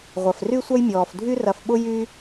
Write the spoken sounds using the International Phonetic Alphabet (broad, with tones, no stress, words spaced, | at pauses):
ʁʷɐ˩fry˥sʷɐ˥jmʲɔː˩f dʱy˦rɐ˨fɓʊ˦ jy˥